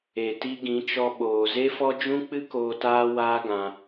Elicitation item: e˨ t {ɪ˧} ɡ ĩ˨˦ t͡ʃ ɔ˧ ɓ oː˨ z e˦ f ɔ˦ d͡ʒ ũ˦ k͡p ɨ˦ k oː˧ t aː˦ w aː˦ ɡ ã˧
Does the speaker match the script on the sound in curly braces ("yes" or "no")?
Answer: no